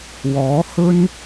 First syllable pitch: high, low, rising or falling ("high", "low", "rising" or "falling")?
rising